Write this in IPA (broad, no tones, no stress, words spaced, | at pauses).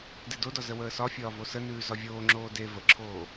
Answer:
dedodɒ zəwəːsɒfʲɒː vosənʉː zɒvʲoːŋ͡ǁoː de vəǁʰoː